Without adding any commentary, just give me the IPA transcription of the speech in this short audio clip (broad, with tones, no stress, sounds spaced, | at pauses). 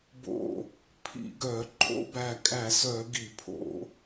b o̰˧˩ | pʰ ḭ˧˩˧ ɡ œ˧˩˧ ǃʼ o̰˨˦ b æ˧˩ kʼ æ˧˩˧ s œ˧˩˧ ɡ i˧˩˧ pʰ o̰˧˩˧